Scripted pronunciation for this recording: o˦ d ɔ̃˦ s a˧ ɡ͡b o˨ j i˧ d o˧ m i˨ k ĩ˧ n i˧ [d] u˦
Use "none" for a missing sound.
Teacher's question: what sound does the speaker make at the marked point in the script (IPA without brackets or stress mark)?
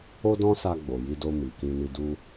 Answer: d